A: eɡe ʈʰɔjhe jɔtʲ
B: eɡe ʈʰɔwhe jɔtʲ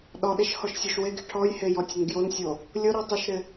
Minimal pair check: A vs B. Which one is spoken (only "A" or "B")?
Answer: A